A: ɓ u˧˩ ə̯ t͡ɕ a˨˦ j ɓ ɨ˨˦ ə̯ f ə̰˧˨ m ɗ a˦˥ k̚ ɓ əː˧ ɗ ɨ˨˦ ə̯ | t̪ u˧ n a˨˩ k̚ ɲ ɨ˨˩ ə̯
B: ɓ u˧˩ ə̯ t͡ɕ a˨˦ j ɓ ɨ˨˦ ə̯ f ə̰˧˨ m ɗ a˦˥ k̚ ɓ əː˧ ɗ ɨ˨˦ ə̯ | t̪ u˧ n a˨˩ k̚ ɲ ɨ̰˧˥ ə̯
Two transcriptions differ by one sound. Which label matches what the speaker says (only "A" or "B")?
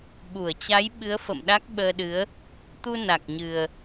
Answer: A